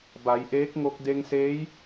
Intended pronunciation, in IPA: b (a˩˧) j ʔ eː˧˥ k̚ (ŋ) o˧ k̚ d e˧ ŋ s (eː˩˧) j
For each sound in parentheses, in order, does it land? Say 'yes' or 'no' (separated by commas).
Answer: yes, yes, no